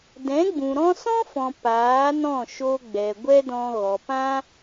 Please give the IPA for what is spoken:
d ɛ̃˨˦ ɡ͡b ũ˨ ɾ ɔ̃˧ s ɔ̃˦ f ɔ̃˨ p aː˨˦ n ɔ̃˦˨ ʃ o˧ ɡ͡b ɛ˨ ɡʷ ɛ˦ d ɔ̃˧ ɣ ɔ˨ p ã˦

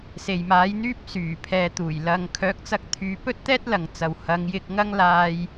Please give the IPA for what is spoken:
s e˨ j m aː˨˥ j n̪ yː˥ p̚ s yː˨˩ pʰ ɛː˨ t̪ uː˨˩ j l ɐ˨ ŋ kʰ œː˨˥ k̚ t͡s ɐ˧ k̚ t̪ʰ yː˨˧ p ɵ˥ t̚ t̪ ɛː˥ t̚ l ɐ˨ ŋ t͡s ɐ˨ w h ɐ˨˧ ŋ j ɪ˧ k̚ ŋ ɐ˥ ŋ l aː˥ j

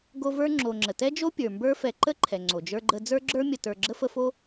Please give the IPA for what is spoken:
ɡ o˦ v ə˞˥ ŋ͡ǁ o˨ ŋ͡ǁ ə˩ t ɛ˥ d͡ʒ o˥ pʲ ə˞˩ m b ə˞˦ f ɛ˨ ǃ ə˥ ǃʰ ɛ˩ ŋ͡ǀ o˩ d͡ʒ ə˞˦ ɡ͡ǃ ə˦ d͡z ə˞˥ ɡ͡ǁ ə˞˥ mʲ ə˨ t ə˞˨ ɡ͡ǁ ə˥ f ə˦ f o˥

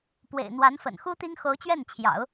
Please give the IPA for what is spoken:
p w ḛ˨˩ ɪ̯ n̪ w a˧˥ n f ə̰˨˩ n x u˥ t̪ i˥ ŋ x o˧˥ ʊ̯ t͡ɕ ɥ ɛ˥˩ n t͡ɕʰ j ɑ̰˨˩˦ ʊ̯

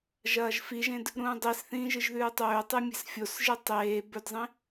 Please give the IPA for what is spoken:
ʒ ɐː ʒ f i ʒ ẽ d | ɾ ũː dˤ i s θ ĩː ʒ ɨ ʒ ð ʉː tˤ ɵː tˤ ɨ mʲ e̤ s fʲ o s ʒ ɨ tˤ eː b ɵ d zˤ ĩ

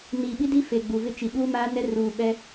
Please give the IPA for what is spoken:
n i˨ ɓ i˦ d i˦ f e˨ ɡ͡b u˨ v ɪ˦ t͡ʃ i˨ ɓ uː˦ m aː˦ n ɛ˦ r uː˨ ɓ ɛ˦

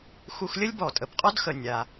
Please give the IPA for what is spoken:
x u˧ x lʲ ə˥ lʲ b ɔ˩ tʼ ə˩ p qʼ ɔ˥ d x ə˩ nʲ a˩

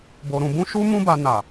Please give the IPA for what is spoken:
b o˧ ɾ ũ˧ b ũ˦ ʃ u˦ m ũ˦ b a˧ n a˨

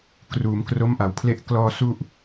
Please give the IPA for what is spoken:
k r uː˩˦ m k r o˦˥ m ʔ a˨˩ w pʰ l e˥˩ ʔ k l ɔː˥˩ s u˥˩ ʔ

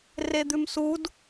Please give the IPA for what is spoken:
r e d̪ ʉ m s u d

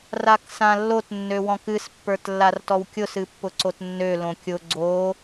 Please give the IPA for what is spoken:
r a k s ã lː o t nː ø w ɔ̃ k ɨ s pː ə˞ t lː a r t ɔ w kʲ ʊ s ɨ pː ʊ ǀ o t nː ø l õ kʲ ʊ ɡ͡ǀ o

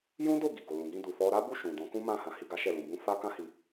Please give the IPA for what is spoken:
j ũ˦ d o˦˨ ɡ i˨ ɡ o˨ l ũ˨ ɡ ĩ˧ d u˨ f ɔ˧ ɾ a˦ b u˦˨ ʃ ũ˨ d ɔ̃˨˦ k ũ˦ m ã˦˨ h ã˧ h i˧ ɡ a˦ ʃ ɛ˦˨ l ũ˧ b ũ˧ f a˦ k ã˦ h i˧

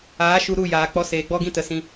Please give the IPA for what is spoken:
aː˨˦ ʃ u˧ ɾ u˦˨ j aː˨ k͡p ɔ˧ s eː˨ ɡ͡b ɔ˦ ɡ ĩ˦ t ə˨ s ĩ˧

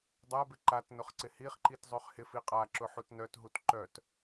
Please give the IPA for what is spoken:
dˤ a b ɪ ǃ a t n ʊ χ ǀ ɪ h i χ ǃ i t zˤ ø χ h ɪ f i qʼ a ǁ ʊ ħ u t n œ t ɦ u t ǃ œ t

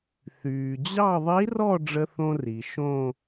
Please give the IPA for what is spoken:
θ yː˩ d͡ʑ ɑ˥˧ ðˤ i˧˥ r ɔ˥˧ ɖ͡ʐ ə˧ θ õ˧ r i˩ ʃ õ˥˧

